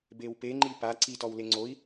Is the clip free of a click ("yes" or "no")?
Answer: no